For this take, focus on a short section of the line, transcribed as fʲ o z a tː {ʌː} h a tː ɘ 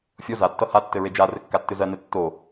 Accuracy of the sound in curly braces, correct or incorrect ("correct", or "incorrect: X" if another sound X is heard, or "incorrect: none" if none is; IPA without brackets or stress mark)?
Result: incorrect: ʌ